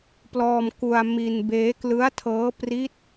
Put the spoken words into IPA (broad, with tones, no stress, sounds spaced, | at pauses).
p l ɔː˧ m k u˧ a̯ m i˧ n b eː˦˥ k l ɯ˦˥ a̯ tʰ ɤː˦˥ p r i˦˥ t̚